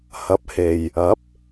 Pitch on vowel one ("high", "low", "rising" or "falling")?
rising